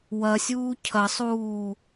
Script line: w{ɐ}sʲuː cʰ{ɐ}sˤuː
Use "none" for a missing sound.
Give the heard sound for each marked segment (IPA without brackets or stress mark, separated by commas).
ɐ, ɐ